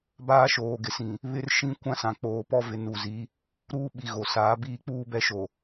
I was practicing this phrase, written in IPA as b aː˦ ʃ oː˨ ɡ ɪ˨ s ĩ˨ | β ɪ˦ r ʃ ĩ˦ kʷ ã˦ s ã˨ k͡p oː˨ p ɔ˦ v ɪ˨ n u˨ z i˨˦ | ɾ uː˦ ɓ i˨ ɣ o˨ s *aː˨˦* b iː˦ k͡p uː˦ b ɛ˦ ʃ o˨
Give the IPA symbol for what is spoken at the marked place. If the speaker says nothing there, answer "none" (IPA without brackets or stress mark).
aː˨˦